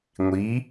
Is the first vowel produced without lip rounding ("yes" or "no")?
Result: yes